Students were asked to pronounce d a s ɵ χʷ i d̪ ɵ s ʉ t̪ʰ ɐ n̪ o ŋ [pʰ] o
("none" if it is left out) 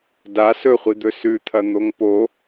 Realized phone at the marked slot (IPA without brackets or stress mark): p